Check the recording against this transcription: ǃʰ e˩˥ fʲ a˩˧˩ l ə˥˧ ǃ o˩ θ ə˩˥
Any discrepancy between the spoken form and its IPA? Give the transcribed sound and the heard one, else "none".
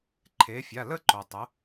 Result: θ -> tˤ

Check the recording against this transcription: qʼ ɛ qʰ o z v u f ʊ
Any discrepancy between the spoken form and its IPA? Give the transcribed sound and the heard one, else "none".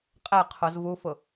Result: none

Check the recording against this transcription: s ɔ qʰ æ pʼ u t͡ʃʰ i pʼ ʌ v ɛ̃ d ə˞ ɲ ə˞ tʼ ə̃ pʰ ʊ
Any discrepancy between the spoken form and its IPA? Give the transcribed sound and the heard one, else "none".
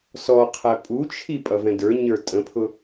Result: none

